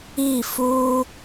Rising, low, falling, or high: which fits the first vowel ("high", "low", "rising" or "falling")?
falling